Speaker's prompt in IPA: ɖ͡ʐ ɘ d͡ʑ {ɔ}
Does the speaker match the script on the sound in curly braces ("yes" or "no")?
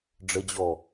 yes